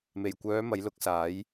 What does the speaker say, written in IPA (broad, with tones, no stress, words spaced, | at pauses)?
me˨˩jkʷœː˨˧ mɐ˨˥jlʊ˨˥k̚saː˨˥j